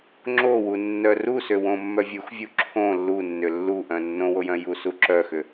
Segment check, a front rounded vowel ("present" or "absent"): present